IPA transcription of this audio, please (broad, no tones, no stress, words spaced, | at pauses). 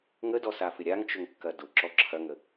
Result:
ŋədɔsafɪ ɾʲaŋt͡ʃʊŋkːɐ dʊǁɔ ǁʰɐŋə